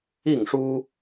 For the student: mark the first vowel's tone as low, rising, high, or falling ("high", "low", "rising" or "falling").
falling